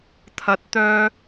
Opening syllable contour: rising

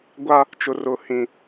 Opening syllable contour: high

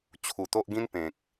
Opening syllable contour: low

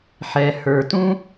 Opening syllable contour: low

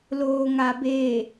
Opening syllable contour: low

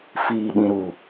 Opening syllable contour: low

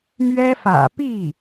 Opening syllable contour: high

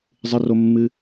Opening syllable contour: high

